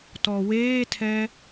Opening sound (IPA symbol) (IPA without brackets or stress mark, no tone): t